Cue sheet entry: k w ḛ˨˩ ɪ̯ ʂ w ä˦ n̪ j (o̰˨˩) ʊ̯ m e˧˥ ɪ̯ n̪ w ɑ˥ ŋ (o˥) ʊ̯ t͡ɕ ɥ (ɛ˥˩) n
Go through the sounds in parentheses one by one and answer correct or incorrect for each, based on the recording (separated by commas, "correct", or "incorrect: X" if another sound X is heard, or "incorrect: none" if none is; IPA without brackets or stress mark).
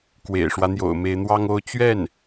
correct, correct, correct